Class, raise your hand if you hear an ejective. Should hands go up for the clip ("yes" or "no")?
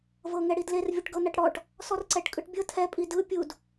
yes